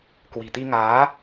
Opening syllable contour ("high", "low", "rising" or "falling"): low